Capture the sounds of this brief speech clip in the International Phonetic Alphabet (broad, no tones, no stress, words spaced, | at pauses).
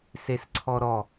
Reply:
sesǀʰɔɾɔ